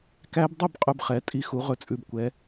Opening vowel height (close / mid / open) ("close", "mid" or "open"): open